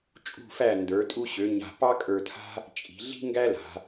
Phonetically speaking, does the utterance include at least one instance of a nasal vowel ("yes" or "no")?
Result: no